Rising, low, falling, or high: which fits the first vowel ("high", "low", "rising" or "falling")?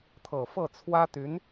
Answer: low